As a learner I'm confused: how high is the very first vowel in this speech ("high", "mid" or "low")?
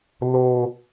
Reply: mid